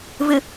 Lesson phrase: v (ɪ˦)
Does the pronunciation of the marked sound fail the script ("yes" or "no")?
yes